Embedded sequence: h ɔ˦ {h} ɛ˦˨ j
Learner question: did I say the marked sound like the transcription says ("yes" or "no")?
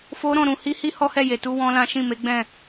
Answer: yes